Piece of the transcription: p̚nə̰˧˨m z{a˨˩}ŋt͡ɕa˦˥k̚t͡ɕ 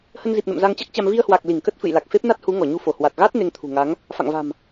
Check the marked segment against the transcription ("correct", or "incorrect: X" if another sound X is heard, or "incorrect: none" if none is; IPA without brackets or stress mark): incorrect: a˧